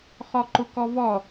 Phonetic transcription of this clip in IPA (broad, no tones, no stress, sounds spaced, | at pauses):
χ ɔ ǃ ʊ k ɔ v ɔ